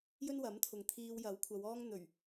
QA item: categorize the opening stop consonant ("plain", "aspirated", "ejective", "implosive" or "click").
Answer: aspirated